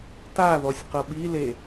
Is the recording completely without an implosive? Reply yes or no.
no